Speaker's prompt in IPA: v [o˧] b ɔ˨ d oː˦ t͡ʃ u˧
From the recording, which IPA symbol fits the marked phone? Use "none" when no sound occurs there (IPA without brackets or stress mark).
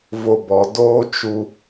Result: o˧